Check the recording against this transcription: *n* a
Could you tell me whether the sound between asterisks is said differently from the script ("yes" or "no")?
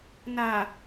no